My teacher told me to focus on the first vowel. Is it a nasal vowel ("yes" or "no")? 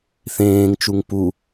yes